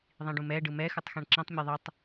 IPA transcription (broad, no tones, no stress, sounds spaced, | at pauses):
ðˤ ĩ ɖ ũ m ɛ ɖ ɯ m ɛ x ɯ tˤ x ɛ̃ ɳ ǁ ĩ tˤ mʲ ɯ ðˤ ɯ tˤ